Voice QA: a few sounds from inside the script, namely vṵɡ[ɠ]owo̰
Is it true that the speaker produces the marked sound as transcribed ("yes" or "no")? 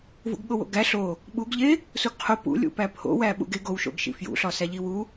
yes